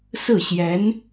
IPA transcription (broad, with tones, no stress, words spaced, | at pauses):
sɹ̩˥˩ɕjɛ˧˥n